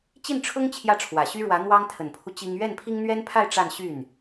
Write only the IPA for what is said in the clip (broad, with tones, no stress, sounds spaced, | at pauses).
t͡ɕ i˥˩ n ʈ͡ʂʰ ʊ˥ ŋ t͡ɕʰ j ä˥˩ ʈ͡ʂʰ w ä˨˩ ɕ y˥ ɻ w ä˧˥ n̪ w ɑ˥ ŋ t̪ʰ ə˨˩ n pʰ u˦ t͡ɕ i˥ ŋ ɥ ɛ˥˩ n pʰ i˥ ŋ n̪ ɥ ɛ˥ n pʰ a˥˧ ɪ̯ ʈ͡ʂ a˥˧ n ɕ y˥˩ n